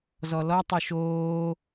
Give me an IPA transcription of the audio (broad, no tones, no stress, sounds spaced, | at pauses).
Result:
z ɔ l ɔ tˤ u ʃ oː